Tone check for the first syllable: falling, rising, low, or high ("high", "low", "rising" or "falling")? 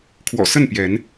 low